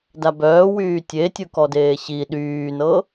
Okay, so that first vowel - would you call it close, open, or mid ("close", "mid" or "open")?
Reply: open